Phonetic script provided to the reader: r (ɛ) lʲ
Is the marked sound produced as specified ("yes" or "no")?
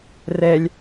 yes